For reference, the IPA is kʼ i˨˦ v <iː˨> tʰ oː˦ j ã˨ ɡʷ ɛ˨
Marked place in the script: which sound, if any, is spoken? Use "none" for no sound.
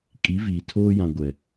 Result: iː˨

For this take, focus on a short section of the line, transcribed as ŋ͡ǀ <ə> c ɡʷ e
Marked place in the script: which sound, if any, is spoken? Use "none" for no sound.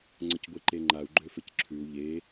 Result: ə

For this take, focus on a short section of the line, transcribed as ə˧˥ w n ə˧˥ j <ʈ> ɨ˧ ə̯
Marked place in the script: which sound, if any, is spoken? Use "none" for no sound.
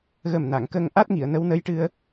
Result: ʈ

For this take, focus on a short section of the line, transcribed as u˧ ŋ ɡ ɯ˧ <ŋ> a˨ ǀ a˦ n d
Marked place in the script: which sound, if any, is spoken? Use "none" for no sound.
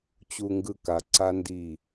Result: k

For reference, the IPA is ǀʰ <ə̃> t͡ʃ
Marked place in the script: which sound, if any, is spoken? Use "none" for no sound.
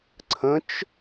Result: ə̃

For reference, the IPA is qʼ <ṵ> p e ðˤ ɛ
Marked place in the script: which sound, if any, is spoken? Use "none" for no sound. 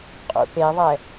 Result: ṵ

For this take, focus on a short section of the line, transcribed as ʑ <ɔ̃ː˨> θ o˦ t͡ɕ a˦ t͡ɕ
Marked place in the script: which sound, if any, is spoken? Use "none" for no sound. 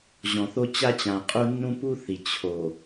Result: ɔ̃˨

